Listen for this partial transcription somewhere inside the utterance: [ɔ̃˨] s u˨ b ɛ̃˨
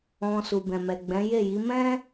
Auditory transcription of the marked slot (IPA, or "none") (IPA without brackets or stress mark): ɔ̃˨